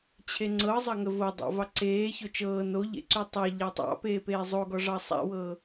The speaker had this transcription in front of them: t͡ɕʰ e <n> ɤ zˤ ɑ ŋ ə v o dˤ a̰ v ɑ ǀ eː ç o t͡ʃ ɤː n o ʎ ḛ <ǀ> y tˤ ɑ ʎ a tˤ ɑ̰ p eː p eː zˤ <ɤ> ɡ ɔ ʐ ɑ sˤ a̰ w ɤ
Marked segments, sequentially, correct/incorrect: incorrect: ŋ͡ǀ, correct, incorrect: o

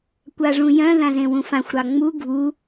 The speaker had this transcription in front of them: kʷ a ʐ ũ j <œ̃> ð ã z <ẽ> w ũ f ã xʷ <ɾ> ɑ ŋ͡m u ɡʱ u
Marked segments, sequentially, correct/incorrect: correct, correct, correct

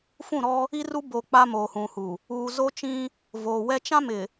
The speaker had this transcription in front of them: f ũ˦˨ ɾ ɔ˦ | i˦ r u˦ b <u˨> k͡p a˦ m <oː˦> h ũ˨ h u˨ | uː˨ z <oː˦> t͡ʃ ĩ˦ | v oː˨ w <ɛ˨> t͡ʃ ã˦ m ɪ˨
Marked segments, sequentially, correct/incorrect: incorrect: o˨, incorrect: oː˨, incorrect: o˦, incorrect: ɛ˦

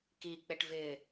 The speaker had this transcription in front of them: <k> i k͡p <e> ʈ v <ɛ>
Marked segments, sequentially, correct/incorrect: correct, correct, incorrect: ɪ

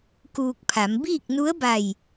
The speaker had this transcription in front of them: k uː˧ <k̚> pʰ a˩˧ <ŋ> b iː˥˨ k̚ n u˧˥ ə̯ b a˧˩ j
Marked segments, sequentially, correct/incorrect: correct, incorrect: m

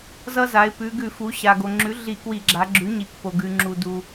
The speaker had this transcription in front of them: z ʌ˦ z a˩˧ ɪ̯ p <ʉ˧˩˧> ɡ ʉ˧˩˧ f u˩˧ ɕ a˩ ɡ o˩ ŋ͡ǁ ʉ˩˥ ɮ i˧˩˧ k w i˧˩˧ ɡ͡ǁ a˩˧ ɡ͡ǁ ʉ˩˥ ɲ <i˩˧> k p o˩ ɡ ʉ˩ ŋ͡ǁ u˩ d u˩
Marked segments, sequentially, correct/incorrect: incorrect: ʉ˩˧, correct

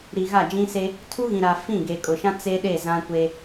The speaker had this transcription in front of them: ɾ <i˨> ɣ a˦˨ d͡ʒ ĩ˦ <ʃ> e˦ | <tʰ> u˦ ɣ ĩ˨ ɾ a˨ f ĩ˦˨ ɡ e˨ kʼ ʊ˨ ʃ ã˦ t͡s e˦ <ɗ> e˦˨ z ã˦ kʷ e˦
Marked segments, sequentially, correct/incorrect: correct, incorrect: s, correct, correct

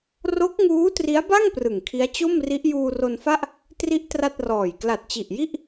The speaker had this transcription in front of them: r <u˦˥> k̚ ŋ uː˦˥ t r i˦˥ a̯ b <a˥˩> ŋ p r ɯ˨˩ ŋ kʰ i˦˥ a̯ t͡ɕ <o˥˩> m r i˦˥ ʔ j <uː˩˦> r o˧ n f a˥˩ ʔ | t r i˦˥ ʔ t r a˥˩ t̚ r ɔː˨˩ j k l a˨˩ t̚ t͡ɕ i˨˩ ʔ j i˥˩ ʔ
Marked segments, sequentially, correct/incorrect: incorrect: o˦˥, correct, correct, incorrect: uː˧

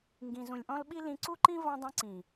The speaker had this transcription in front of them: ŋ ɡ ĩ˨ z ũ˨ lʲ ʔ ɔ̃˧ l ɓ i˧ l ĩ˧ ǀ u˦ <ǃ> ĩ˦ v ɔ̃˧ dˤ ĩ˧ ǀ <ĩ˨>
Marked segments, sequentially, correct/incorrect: correct, correct

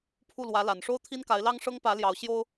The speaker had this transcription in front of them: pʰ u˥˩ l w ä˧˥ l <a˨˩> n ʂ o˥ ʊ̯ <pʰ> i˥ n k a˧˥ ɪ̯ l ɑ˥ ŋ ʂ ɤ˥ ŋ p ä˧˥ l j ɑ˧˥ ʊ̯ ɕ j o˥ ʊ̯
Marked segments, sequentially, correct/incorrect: correct, incorrect: t̪ʰ

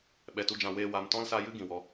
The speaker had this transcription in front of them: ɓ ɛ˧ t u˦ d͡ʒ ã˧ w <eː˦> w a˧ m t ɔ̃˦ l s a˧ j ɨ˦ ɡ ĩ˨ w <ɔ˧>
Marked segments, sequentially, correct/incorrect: correct, correct

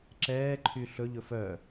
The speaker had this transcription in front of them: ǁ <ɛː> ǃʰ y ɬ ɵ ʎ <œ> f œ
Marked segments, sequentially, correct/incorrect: correct, incorrect: ɵ

